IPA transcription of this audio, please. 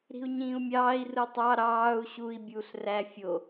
ɾ i̤ u̯ ɲ ĩː u̯ mʲ ɑː i̯ r ɯ tˤ ɑ ɾ ɑː u̯ ɕ u i̯ bʲ uː ɬ r æ fʲ o

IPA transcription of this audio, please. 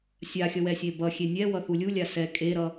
sʲ a xʲ ʌ w ɛ sʲ e b ʌ xʲ e nʲ ɛ w ʌ θ u lʲ u lʲ a s ɛ kʼ e ɾ ʌ

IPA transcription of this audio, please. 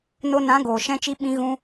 n o˧ n ã˨˦ ɡ oː˨ ʃ ɛ̃˧ t͡ʃ i˧ ɓ ĩ˧ ɣ ũ˧

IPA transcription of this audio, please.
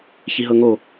ç i ɦ ɤ ŋ o

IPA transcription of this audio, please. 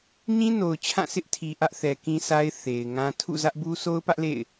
ɲ ĩ˦ n o˨ ʊ̯ t͡ɕʰ ã˦˨ s ɪ˦ ʔ tʰ i˨ ʔ ä˦ ʔ θ ɛ˨ k ĩ˦ s a˦ ɪ̯ θ e˨ ɪ̯ ŋ ã˦ tʰ ṵ˦˨ z ä˦ ʔ b u˦ s o˦ ʊ̯ p ä˦ ʔ l ḛ˦˨ ɪ̯

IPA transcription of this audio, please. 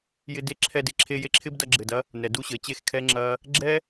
j ɪ˧ d e˦ ǁʰ ɛ˧ d e˨ ǁʰ e˧ j e˧ ǁʰ ɪ˦ b d ɐ˧ ɡ͡ǁ ɘ˨ d ɐ˦ | n ɛ˨ d u˧ ɕ ɘ˨ t͡ɕ e˦˨ x kʰ ɛ˦ ŋ͡ǁ ɐ˦ | ɡ͡ǁ ɛ˦

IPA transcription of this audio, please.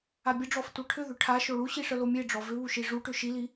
a bʲ ə ɖ͡ʐ ɔ f tʷ œ ʈʰ ʏ ð ʏ ʈʰ a ʃ o ɭ u ɕ i ʂ ə l o mʲ e ɖ͡ʐ ɔ v ʏ β u ʃ i ʐ u ʈ ʏ ʃ i l i

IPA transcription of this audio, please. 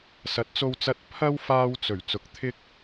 s ɐ˨˥ t̚ t͡s o˧ w t͡s ɐ˧ t̚ pʰ ɐ˥ w f aː˧ w t͡s ɵ˨˩ ɥ t͡s ʊ˨ k̚ t̪ʰ ɪ˥ k̚

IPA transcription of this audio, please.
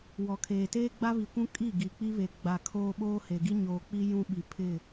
w ɔ˨ kʰ eː˨ t eː˦ ɡ͡b a˦ β i˨ kʷ ũ˦ kʼ i˦˨ ɡ i˨ k͡p i˦ β e˨ ɡ͡b a˨ kʰ oː˦ ɓ oː˦ h e˨ ɡ i˦ ɲ oː˨ k͡p i˦ j ũ˦ ɓ i˨ pʰ ɪ˦˨

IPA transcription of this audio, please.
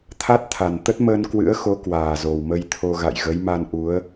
t̪ʰ a˦˥ t̚ t̪ʰ a˨˩ n t̪ ə˦˥ t̚ m əː˧ n k w ɨ̰˧˥ ə̯ x o˨˦ k w aː˨˩ z o˨˩ w m ə˧ j t̪ʰ o˧ ɣ a̰˧˨ j ɣ ə˨˦ j m a˧ n ʔ u˨˦ ə̯

